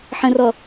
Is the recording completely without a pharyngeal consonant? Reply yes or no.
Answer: no